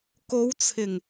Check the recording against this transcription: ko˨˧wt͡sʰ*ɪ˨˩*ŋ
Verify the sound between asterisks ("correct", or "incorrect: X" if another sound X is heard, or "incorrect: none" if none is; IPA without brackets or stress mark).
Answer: correct